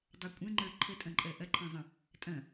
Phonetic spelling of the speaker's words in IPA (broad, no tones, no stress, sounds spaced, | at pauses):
dˤ ɛ kʷʼ ɛ̃ ŋ͡ǃ ə˞ ǃʰ ə tʼ ɐ̃ ǃʼ ɜ ʔ ɐ ǃʰ ẽ zˤ ə̃ | tʼ ɐ̃